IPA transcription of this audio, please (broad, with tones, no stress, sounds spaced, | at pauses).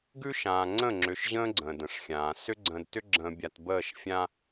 ɡ ʉ˦ ʃ ãː˨ ŋ͡ǀ ə̃˦˨ ŋ͡ǁ ʏ˨ ʃ ʑ ə̃ː˦ ɡ͡ǀ ə̃ː˨ d ə̃˨ ʂ xʲ ãː˨ s ʏ˦ ɡ͡ǀ ə̃ː˨ d t ʏ˦ ɡ͡ǁ ə̃ː˨ bʲ a˨ t b əː˦˨ ʃ fʲ ã˦